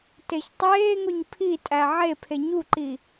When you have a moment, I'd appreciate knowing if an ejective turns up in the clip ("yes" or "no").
yes